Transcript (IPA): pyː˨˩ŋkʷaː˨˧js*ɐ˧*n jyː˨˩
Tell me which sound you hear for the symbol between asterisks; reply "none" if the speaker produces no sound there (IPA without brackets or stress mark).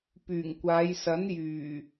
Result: ɐ˨˥